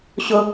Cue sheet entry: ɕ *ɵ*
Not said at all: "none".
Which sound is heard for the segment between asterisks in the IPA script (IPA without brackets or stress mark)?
ʊ